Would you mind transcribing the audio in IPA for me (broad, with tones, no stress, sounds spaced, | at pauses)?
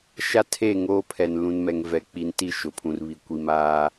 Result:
ʃ a˦ tʰ e˦˨ ŋ oː˦ pʰ ɛ˨ n l ũ˨ n m ɛ˨ ŋ v ɛ˨ k͡p i˨ n t i˦˨ ʃ ʊ˨ pʰ ũ˨ r β i˨ kʷ i˨ m aː˦